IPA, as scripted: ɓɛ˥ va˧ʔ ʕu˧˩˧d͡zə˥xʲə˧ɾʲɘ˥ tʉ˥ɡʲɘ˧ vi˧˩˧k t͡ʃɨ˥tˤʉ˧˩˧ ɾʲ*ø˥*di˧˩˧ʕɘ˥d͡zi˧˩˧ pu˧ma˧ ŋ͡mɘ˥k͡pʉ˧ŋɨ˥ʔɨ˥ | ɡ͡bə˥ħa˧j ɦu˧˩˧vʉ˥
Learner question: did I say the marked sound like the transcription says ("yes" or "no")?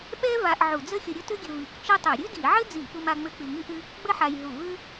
no